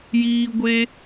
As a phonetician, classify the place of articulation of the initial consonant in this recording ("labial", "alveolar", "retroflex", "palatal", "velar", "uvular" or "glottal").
palatal